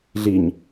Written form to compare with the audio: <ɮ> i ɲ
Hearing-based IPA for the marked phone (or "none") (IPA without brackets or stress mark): ɮ